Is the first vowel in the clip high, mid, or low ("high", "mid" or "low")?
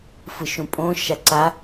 high